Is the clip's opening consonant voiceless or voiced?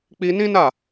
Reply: voiceless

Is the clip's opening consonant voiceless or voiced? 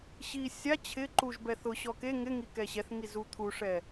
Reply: voiceless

